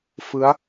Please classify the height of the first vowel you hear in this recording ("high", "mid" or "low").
high